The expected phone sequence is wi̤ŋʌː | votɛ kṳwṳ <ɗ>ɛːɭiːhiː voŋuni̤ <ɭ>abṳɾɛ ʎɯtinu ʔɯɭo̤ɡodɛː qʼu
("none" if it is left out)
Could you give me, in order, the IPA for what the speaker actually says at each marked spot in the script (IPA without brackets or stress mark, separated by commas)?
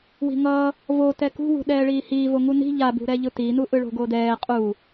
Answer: ɗ, ʎ